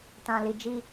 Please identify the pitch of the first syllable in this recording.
low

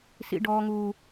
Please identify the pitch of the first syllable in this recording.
high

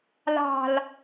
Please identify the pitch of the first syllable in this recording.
low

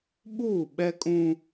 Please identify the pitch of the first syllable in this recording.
falling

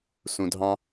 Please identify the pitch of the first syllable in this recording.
low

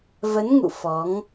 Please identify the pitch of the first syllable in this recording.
rising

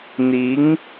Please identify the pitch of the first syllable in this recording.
rising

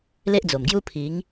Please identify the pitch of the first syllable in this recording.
high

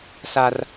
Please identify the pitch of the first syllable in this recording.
high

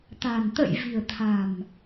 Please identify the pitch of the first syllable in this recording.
low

